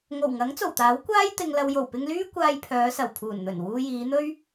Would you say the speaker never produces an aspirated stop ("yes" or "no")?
no